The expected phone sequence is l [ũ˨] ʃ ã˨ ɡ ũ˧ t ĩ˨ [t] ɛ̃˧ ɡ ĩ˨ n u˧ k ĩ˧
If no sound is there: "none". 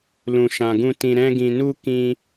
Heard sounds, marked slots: ũ˨, ɾ

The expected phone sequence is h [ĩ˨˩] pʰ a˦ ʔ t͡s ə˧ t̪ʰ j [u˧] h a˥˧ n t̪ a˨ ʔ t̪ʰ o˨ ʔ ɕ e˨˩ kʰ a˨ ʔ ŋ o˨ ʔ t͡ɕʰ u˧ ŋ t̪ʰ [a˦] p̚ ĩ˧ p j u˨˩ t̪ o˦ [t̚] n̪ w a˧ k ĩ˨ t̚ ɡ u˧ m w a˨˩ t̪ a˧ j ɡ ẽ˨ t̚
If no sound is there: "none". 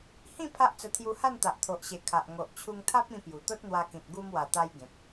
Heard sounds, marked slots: ĩ˥˧, u˧, a˦, t̚

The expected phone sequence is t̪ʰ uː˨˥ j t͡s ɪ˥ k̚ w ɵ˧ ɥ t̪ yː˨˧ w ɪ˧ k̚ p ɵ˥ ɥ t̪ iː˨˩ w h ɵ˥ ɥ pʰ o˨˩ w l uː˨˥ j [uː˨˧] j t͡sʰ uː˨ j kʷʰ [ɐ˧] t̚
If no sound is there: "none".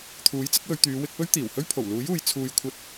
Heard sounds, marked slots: uː˨, ɐ˧

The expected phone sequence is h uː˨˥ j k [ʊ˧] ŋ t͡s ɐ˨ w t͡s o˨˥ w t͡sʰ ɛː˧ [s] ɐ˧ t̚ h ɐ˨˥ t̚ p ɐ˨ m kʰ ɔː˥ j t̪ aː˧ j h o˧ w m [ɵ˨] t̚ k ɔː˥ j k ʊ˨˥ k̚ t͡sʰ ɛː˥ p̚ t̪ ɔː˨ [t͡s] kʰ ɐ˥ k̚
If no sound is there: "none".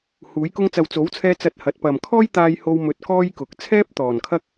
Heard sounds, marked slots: ʊ˧, t͡s, ɵ˧, n

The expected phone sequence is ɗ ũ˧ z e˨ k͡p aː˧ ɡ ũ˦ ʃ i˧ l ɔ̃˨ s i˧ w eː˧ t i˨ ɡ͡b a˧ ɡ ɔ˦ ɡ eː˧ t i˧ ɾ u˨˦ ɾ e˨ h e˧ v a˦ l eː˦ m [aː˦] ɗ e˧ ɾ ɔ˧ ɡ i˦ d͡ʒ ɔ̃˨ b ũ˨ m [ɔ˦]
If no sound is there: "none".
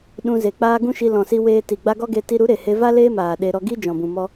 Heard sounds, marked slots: aː˨, ɔ˧

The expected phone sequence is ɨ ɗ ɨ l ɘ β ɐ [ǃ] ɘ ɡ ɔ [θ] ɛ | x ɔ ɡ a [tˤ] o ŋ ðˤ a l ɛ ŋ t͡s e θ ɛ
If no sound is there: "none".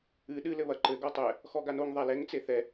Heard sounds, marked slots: ǃ, tˤ, n

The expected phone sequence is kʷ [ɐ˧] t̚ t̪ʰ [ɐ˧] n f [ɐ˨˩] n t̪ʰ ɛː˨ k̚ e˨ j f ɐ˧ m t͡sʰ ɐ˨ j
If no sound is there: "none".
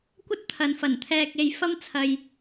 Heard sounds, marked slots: ɐ˥, ɐ˨, ɐ˨˩

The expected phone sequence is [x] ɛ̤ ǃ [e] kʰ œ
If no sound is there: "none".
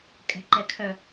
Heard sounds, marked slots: kʼ, ɛ

